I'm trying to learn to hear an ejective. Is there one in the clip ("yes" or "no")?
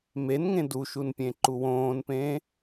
no